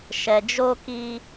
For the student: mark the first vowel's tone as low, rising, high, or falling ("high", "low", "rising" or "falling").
low